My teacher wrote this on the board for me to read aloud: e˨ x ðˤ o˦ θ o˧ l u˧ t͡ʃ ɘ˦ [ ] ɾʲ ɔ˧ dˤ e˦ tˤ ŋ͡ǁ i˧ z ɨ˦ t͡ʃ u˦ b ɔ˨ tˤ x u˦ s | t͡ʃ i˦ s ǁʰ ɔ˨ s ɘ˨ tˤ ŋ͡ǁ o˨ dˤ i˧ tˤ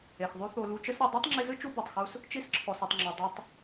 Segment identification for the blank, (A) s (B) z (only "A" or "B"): A